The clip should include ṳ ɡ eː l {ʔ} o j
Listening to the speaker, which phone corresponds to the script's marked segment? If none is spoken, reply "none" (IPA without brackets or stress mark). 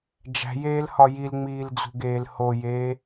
h